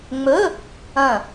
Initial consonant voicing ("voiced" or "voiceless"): voiced